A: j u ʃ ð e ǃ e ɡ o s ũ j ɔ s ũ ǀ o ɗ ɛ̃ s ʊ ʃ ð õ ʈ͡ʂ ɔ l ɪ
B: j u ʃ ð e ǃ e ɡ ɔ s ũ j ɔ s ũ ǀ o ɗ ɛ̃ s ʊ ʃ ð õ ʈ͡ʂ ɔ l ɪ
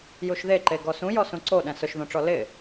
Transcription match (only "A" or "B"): B